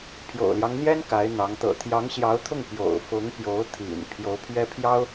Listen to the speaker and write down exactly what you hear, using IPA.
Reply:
pʰ j o̰˨˩ ʊ̯ l j ɑ˦ ŋ n̪ j ɛ˥ n k a˧˥ ɪ̯ n̪ ɑ˧˥ ŋ t̪ ɤ̰˨˩ t̪ʰ j ɑ˧˥ ŋ ɕ j ɑ˧˥ ʊ̯ t̪ʰ ʊ˥˩ ŋ p j o̰˨˩ ʊ̯ f ʊ˧˥ ŋ p j o˧˥ ʊ̯ t̪ʰ ḭ˨˩ n pʰ j o˧˥ ʊ̯ pʰ ɥ ɛ˥ pʰ j ɑ˥ ʊ̯

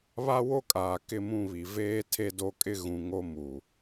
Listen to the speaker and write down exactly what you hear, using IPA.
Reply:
β a˦ w o˦ kʼ aː˨ k ɪ˦˨ m ũ˦˨ β i˨ v eː˦ tʰ e˦ d o˦ kʼ ɪ˦ ɣ ũ˨ ŋ o˦ m u˨

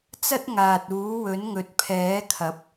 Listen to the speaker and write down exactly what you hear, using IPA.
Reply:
t͡s ɐ˥ t̚ ŋ aː˨ t̚ uː˨˥ w ɵ˨˥ n ŋ ɵ˨ t̚ pʰ ɛː˨˥ kʰ ɐ˨˥ p̚

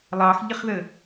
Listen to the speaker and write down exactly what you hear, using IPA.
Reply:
lˠ ɑ x ʎ ə χ ð ə

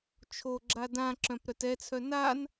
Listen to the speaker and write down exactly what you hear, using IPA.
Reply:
t͡ʃʰ o ɡ͡ǁ a d ã ǁ œ̃ p ɾ œ t ɛ t͡sʰ œ n a n

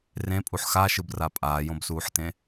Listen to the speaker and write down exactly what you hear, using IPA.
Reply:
r ẽ pʼ u ħ x a ʃ ɯ b r a pʼ aː j õ b s uː ħ t ẽ

